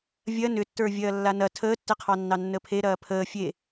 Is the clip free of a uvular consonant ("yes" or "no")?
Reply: no